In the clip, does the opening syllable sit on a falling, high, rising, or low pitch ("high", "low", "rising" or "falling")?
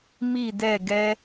falling